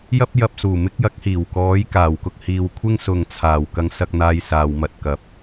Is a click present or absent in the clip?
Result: absent